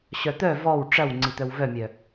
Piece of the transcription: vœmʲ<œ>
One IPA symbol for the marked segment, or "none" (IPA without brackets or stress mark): œ